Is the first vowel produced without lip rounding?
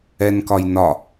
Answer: yes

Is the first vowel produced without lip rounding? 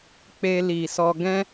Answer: yes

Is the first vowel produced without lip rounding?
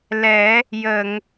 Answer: yes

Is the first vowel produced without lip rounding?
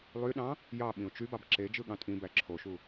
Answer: no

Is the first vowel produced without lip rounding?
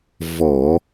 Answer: no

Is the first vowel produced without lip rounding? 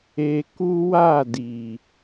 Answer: yes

